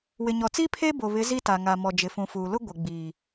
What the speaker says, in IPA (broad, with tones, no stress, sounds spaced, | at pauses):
w ɪ˨ ɲ ɔ˨ t͡s iː˦ pʰ e˦ b o˨ β ɪ˨˦ z i˦ t a˨ ŋ a˨ m ɔ˨ d͡ʒ ɪ˨ f ũ˨ f uː˨ l ʊ˦ ɡʷ ɪ˨ ɡ͡b iː˨